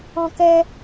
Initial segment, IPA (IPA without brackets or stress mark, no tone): ɔ̃